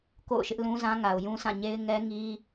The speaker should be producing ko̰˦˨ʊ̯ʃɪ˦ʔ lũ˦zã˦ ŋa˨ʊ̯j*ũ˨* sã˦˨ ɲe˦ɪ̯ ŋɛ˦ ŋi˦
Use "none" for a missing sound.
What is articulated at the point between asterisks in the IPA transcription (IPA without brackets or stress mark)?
ũ˦